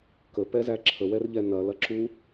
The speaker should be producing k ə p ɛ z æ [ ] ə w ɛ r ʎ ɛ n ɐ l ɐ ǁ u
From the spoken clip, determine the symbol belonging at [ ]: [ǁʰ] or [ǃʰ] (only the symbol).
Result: ǁʰ